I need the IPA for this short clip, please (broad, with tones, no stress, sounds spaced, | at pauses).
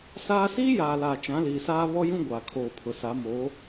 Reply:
s aː˦ s iː˦ j aː˨ l a˨ t͡ʃ ã˨˦ l iː˨ s aː˦ β ɔ˦ j ũ˦ ɡʷ aː˨ kʰ oː˨ pʰ ʊ˨ s a˨˦ m oː˨˦